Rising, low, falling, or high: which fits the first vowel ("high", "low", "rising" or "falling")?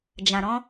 low